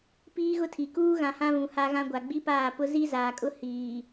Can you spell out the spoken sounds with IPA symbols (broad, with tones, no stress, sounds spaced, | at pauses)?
p iː˦ ɣ ʊ˦ tʰ i˨ k uː˦ ɣ ã˨ h ã˦ β ũ˨ h a˦ ɣ ã˦ ɡʷ a˨ ɡ͡b i˦ p aː˦˨ p ʊ˦ z i˦ z aː˨ kʼ ʊ˦ h iː˨